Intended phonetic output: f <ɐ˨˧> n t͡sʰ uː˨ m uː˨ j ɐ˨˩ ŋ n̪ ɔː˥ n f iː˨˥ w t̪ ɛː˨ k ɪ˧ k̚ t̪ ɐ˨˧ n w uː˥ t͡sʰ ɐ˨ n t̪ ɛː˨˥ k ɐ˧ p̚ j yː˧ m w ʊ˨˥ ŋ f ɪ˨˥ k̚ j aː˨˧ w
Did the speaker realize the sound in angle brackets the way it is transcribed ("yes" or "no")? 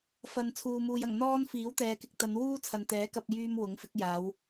no